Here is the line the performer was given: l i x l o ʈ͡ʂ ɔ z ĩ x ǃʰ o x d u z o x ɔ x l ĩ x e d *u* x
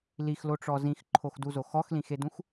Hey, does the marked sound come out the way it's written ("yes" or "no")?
no